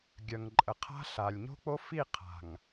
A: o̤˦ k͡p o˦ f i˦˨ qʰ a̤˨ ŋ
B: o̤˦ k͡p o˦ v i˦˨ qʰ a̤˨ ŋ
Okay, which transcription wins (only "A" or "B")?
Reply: A